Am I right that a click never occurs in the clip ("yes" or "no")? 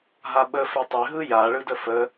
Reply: yes